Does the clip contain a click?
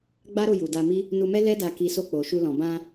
no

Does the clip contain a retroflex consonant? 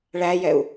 yes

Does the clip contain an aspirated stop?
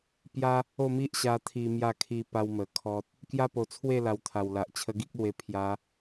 yes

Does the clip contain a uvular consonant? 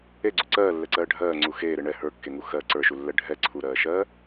no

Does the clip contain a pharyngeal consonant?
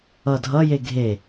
no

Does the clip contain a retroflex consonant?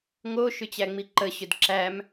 no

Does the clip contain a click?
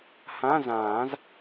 no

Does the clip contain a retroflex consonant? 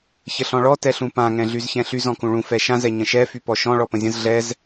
yes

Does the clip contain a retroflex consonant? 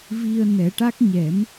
yes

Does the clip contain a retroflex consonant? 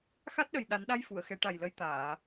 yes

